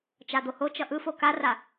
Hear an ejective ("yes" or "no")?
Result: no